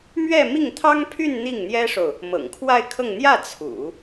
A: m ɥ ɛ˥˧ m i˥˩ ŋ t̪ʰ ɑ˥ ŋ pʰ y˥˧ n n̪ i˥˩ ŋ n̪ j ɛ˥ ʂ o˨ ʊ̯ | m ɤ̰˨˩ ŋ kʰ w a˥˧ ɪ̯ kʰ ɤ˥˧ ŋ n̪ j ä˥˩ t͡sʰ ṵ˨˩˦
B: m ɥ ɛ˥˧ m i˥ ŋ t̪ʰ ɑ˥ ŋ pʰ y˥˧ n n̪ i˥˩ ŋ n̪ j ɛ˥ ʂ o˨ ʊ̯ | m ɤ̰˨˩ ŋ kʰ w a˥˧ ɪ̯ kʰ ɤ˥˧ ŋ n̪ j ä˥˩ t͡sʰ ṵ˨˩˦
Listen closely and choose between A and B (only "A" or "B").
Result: A